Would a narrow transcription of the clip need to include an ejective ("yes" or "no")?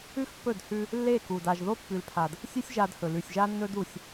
no